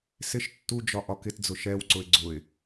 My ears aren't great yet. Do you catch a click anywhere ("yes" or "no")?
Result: yes